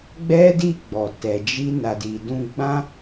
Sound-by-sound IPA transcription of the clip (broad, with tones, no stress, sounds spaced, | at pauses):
ɡ͡b ɛ˦ d i˦˨ ɡ͡b ɔ˨ t ɛ˨ d͡ʒ i˧ n a˨ d i˨ d ũ˧ ɡ͡b ã˦